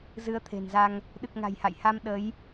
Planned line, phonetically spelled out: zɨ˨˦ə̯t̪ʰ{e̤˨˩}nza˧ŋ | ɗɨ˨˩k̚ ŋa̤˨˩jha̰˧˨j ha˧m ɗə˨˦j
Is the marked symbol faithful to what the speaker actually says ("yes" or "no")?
yes